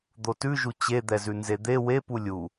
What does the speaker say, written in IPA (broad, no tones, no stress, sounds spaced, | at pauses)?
d̪ o t ʉ ʒ u t͡ɕ e d̪ ɛ z ʉ n z e d̪ e w e p u lʲ u